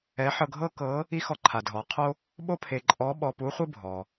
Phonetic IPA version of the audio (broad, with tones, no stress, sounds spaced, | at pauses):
ɛ˧˥ ħ ɤ˧ ɡʱ ɤ˥ k ɤ˧˥ | i˥ x ɔ˧ ǃʰ a˩ dʱ ɔ˩˧ qʰ o˥ | ɓ o˥ pʰ e˧ ǃʼ ɔ˧˥ ɓ ɔ˧ p u˧˥ χʷ ɯ˥ bʱ ɔ˩